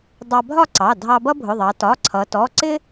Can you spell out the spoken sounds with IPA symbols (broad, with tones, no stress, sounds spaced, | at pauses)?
dˤ ɑ˧ bʱ ɒ˥˧ ǀ ɑ˩˧˩ dʱ ɑ˧ b ʌ˥ bʱ ʊ˩˧˩ ðˤ ɑ˩˧ t ɒ˩˧˩ ǀʰ ʌ˩˧ t ɔ˩˧˩ ǀ ɪ˥